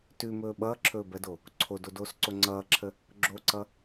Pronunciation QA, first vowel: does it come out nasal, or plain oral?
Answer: oral